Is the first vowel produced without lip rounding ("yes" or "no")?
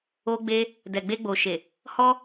no